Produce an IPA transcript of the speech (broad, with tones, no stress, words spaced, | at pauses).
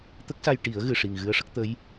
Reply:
t̪ə˦˥k̚sa˧jʈi˨˩˦ə̯ ɣɨ˨˩ʂi˨˩ŋ ɣɨ˧˥ə̯ʂə˦˥k̚ t̪ə˧˥j